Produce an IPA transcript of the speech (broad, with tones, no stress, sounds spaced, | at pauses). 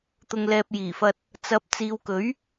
t̪ ʊ˨ ŋ l ɛː˨ p̚ j iː˨˩ f ɐ˧ t̚ | t͡s ɐ˨˥ p̚ t͡s iː˨ w k ɵ˨˥ ɥ